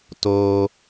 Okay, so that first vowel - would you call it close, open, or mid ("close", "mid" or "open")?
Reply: mid